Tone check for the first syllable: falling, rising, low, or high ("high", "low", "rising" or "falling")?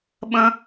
high